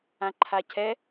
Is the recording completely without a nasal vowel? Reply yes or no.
no